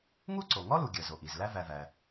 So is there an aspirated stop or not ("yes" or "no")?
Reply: no